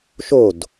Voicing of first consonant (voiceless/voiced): voiceless